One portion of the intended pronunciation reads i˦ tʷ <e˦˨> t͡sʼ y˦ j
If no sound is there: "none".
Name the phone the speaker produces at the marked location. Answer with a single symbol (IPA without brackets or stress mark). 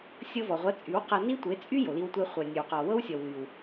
e˨˦